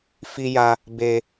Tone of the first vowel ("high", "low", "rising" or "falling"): high